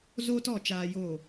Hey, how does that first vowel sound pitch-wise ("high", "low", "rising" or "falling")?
high